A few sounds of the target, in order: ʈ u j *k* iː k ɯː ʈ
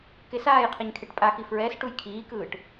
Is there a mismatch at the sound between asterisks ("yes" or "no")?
yes